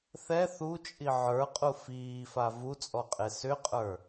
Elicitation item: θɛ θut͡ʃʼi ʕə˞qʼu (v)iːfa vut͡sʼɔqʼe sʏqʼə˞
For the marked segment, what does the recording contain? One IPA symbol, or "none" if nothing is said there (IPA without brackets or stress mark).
f